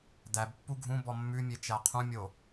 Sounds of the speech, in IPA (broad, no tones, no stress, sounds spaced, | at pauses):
d æ b pː u ɡʱ ũ b ɔ mː ʉ mʲ e t͡ʃ æ qʰ ũ mʲ o